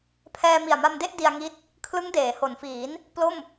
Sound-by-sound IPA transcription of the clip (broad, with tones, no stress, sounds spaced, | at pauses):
pʰ ɛː˧ m i˨˩ a̯ m a˧ m d e˥˩ ʔ d i˧ a̯ ŋ i˦˥ t̚ | kʰ l ɯ˦˥ ŋ d eː˩˦ h o˩˦ n f iː˩˦ n | p l o˥˩ m